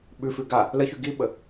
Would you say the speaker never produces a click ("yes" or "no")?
yes